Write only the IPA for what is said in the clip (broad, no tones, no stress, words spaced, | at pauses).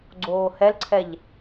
ɡ͡ǀoːhɛlǀʰɛʎ